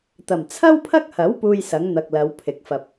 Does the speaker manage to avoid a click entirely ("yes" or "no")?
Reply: yes